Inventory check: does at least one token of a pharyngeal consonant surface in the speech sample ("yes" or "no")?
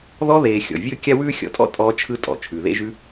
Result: no